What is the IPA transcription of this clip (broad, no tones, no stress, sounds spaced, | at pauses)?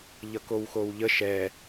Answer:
ʎ ʌ k o w x o w ʎ ə ʃ ɛ